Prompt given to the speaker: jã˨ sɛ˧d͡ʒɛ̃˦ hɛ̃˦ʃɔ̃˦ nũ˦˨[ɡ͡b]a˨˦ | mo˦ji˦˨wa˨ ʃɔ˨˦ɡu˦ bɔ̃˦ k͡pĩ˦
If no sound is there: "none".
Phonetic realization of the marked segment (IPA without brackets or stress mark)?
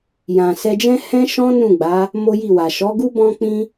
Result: ɡ͡b